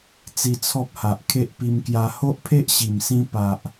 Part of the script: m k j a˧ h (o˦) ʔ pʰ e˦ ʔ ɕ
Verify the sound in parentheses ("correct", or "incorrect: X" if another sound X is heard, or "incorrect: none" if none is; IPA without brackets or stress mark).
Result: correct